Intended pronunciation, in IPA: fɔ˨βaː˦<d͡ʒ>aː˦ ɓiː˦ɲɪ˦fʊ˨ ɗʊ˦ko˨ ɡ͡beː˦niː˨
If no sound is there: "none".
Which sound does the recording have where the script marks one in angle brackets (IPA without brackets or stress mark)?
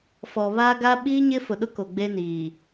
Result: ɡ